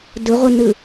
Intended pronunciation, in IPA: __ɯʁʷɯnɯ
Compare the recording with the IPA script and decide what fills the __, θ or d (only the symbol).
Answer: d